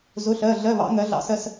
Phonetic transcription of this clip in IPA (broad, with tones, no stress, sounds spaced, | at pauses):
z ʊ˧˥˧ ɬ ɜ˧˥˧ ɮ ɜ˧˥˧ β ɑ̰˨˥ ŋ ɜ˨˥ ɮ ɑ̰˧˥˧ s ɜ˥˧ s